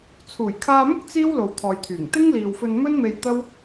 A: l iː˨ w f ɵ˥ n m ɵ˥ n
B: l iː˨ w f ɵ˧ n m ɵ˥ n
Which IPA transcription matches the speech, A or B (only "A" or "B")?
B